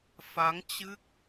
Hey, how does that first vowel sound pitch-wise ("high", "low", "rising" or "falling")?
rising